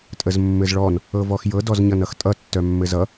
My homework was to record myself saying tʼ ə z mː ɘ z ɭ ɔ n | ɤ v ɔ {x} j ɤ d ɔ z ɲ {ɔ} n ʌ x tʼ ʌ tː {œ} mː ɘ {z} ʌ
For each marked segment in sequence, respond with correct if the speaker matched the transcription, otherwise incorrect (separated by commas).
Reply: correct, incorrect, correct, correct